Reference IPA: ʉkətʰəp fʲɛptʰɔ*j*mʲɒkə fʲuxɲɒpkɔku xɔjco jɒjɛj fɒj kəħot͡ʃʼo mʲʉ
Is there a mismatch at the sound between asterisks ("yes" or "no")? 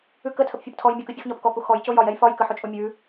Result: no